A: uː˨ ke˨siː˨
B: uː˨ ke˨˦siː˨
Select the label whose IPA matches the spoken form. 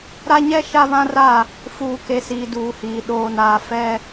A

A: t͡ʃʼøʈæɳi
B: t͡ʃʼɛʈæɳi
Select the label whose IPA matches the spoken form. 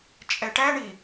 B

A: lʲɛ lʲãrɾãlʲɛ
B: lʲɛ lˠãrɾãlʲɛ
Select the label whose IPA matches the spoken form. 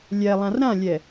B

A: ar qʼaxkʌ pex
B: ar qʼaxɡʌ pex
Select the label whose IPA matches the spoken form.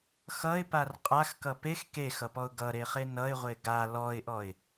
A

